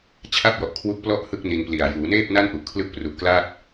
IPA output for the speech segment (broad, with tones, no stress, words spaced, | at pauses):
t͡ɕʰa˥˩p̚jɔ˨˩ʔkʰwu˦˥k̚plɔ˥˩ʔ hɯ˥˩k̚ni˧n pli˨˩a̯ juː˩˦neː˥˩p̚na˥˩n ʔu˨˩ʔkʰlɯ˦˥k̚pru˨˩ʔkla˥˩t̚